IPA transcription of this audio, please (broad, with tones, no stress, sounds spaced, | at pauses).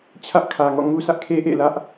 t͡ɕʰ ä˦ ʔ kʰ ä˨ ŋ ɔ̰˦˨ ŋ u˦ s ä˦ ʔ kʰ e˦ ʔ ḛ˦˨ l ä˦ ʔ